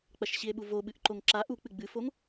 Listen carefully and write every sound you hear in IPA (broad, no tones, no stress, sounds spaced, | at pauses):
k͡p ɐ ʃ ɕ i e̯ ɓ u v o ɓ ɨ ʔ ǃ o ŋ ǁ a ʔ u k͡p ɨ ɡ͡b ɨ f o ŋ